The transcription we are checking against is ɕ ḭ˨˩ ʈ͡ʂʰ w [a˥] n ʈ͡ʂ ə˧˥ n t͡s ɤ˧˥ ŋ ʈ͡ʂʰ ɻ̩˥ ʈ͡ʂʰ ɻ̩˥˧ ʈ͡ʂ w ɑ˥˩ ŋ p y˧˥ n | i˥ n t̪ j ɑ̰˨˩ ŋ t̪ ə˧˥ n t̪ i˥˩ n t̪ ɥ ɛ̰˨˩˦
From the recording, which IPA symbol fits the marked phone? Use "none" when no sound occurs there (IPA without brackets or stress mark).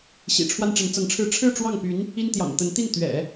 a˥